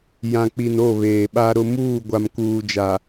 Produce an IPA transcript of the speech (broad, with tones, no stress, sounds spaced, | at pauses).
j ã˨ k͡p i˨ n o˦˨ β eː˨ ɓ a˦ ɾ ʊ˦ m uː˦˨ ɡʷ a˨ m k uː˨ d͡ʒ a˨